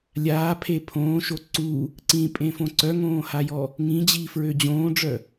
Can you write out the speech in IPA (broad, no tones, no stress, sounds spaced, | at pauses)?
lʲ aː pʰ e pʰ õː ʃ o ǀ u | ǀ ĩ pʼ ẽ f õ ǀ œ ŋ õː h a j ɔ | ŋ ĩ d͡ʑ iː f ɹ ø d͡ʑ õː ɖ͡ʐ œ